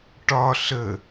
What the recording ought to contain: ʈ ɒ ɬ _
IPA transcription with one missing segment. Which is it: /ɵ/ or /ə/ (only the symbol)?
ə